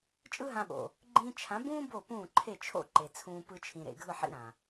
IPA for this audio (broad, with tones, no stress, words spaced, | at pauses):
t͡ʃʼɯ˦ɦã˧ ɓo̰˨ | ɡ͡ǃĩ˧t͡ʃʰã˨˦bũː˦ bo˦˨ pũː˦˨ǃʰe˦˨t͡ʃʰo̰˦ ǃe˨t͡sʰũː˧ pɯ˧t͡ʃʰĩ˨ɾḛ˨ɡʱɯ˦˨ ħḭ˧ɾã˨